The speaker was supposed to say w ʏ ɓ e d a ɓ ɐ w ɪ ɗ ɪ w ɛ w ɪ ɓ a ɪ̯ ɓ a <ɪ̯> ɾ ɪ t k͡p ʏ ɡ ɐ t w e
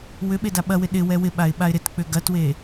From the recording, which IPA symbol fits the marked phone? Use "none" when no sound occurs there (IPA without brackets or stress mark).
ɪ̯